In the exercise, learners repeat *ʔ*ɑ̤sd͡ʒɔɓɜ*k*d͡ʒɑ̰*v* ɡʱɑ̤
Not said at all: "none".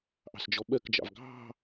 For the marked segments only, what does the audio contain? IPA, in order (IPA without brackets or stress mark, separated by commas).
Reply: ʔ, k, v